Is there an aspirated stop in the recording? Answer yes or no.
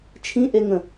yes